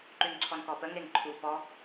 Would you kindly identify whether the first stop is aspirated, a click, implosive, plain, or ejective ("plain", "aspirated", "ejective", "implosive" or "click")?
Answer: click